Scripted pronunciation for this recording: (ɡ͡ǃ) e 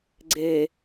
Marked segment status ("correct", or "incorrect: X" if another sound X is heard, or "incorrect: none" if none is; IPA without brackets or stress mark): incorrect: ɡ͡ǀ